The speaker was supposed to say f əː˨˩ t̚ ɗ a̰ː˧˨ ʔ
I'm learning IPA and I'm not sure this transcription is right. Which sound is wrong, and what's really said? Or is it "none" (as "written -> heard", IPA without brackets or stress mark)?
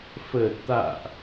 ɗ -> t̪